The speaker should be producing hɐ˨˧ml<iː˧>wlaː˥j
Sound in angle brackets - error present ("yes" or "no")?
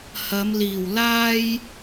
yes